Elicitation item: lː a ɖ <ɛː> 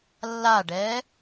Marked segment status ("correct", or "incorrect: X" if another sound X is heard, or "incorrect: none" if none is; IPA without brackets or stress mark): correct